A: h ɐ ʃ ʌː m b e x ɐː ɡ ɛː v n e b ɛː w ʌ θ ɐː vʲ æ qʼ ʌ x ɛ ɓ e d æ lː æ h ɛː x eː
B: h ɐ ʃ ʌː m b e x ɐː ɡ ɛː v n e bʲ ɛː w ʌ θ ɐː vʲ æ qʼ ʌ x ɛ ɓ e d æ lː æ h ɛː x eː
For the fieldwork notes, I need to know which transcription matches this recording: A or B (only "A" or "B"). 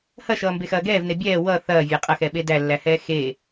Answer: B